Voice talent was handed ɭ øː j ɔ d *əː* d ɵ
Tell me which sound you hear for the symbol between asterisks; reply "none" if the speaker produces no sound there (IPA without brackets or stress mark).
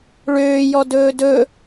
ɵː